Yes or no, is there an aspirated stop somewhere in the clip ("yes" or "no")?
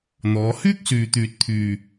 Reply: yes